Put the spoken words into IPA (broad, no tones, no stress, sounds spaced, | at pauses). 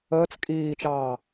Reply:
əː t͡s kʼ iː t͡ʃ ɑː